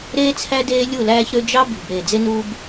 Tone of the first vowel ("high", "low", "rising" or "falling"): high